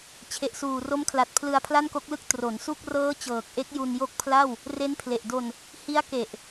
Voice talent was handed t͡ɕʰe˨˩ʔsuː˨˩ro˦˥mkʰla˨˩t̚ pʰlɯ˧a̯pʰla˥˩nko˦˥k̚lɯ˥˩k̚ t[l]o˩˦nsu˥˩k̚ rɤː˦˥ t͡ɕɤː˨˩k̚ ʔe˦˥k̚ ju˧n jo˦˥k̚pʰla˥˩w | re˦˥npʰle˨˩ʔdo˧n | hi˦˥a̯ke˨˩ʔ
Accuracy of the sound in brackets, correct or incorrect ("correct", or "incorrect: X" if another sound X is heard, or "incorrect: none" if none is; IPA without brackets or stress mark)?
incorrect: r